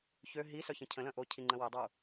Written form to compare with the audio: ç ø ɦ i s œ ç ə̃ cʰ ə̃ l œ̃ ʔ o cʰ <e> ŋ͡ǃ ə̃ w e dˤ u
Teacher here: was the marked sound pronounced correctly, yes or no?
no